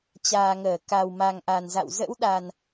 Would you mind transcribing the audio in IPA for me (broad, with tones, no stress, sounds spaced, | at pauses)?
t͡ɕ aː˨˩ ŋ əː˧˩ k a˨˩ w m a˨˩ ŋ ʔ a˨˩ n z a̰˧˨ w z ə̰˧˥ w ɗ a˨˩ n